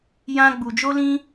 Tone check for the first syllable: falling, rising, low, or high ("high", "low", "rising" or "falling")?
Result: high